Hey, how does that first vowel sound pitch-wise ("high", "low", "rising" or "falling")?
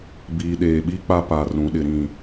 low